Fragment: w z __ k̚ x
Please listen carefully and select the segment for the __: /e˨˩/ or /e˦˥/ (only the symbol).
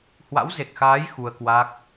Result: e˨˩